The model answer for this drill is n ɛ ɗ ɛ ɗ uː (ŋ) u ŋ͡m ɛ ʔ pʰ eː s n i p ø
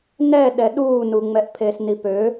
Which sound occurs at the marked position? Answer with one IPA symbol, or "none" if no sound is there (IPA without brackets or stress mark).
n